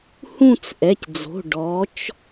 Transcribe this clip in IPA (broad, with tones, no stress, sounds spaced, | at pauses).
h ũ˥˧ t͡s ʔ ɛ˩˧˩ c d͡z o̤˩˧˩ ɖ ɔ˩˧ t͡ʃ